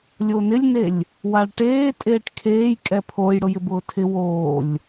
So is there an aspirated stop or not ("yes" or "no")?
yes